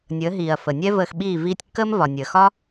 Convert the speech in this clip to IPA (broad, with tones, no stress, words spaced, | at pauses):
nʲəː˩˥ɦiː˩ɐ̯fə˩nʲɛ˥ vəː˧xɓiː˥˩ viː˧tʲkːəː˥m vɒ˩nʲəː˩xɒ˥